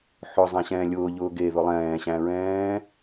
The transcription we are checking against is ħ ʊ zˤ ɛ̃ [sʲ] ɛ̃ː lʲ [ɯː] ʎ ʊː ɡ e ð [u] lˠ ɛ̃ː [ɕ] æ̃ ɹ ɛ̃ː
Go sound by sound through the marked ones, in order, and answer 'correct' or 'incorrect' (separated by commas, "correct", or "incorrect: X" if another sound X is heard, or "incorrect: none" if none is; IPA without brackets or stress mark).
incorrect: ɕ, incorrect: ʊː, incorrect: ʊ, correct